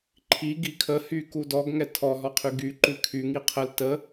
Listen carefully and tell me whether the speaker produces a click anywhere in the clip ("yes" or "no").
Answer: yes